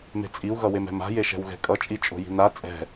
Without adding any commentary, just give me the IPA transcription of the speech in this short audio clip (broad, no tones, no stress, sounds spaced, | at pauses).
m e̤ t͡sʼ i u̯ ɣ ʌ w e m ɛ̤ m a̤ j e ʃ ɛ̤ w ɣ ɛ̤ kʼ ʌ t͡ʃʼ i t͡ʃʼ o̤ j i̤ n a t͡sʼ ɛ̤